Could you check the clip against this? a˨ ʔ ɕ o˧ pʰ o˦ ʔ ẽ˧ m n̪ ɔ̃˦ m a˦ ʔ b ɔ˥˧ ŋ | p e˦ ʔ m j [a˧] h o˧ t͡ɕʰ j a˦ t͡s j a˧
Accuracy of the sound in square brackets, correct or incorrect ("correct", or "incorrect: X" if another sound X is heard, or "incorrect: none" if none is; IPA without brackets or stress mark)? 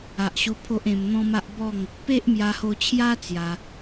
correct